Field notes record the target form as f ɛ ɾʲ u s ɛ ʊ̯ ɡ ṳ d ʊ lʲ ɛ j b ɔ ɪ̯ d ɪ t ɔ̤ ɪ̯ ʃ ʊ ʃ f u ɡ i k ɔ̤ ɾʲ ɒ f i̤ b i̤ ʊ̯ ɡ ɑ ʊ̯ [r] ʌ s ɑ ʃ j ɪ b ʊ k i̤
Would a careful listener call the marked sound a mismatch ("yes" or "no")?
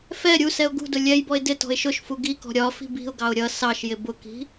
yes